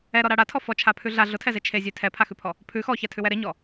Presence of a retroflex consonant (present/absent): present